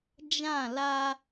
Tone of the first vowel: falling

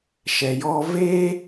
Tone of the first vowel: low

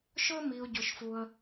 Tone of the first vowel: high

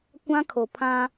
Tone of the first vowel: high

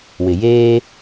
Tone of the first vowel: low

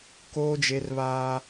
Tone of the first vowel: high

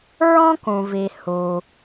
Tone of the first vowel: high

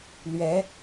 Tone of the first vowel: rising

